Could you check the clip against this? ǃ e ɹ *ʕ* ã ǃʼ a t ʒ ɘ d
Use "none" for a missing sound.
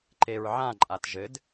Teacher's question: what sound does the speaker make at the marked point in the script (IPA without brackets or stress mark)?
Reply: ʕ